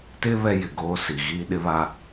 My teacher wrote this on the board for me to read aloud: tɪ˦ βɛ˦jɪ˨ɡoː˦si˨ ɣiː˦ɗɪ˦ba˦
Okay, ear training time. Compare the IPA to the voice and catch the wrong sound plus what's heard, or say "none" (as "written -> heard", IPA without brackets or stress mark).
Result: b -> β